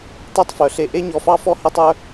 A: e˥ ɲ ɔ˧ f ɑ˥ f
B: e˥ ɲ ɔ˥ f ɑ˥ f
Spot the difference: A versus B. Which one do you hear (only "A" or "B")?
A